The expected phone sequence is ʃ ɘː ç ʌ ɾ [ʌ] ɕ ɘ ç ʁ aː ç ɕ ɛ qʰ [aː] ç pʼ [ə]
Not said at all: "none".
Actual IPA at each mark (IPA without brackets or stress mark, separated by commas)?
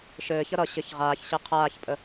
ʌ, aː, ə